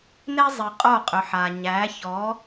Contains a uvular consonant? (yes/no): yes